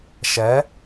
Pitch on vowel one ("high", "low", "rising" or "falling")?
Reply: rising